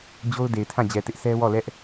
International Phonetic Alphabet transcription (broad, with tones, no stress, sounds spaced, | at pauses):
d͡ʑ o˦ ʊ̯ d e˨ ɪ̯ tʰ ã˦˨ d͡ʑ ɛ˨ t ɪ˦ ʔ s ɛ˦ w ɔ˦˨ l ɛ˦ ʔ